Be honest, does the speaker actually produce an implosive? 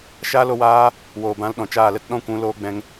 yes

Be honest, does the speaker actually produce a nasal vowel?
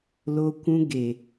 yes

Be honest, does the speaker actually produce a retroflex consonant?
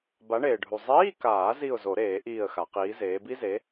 yes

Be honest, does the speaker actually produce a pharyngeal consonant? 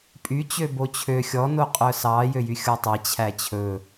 no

